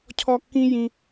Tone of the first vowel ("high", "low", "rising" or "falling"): high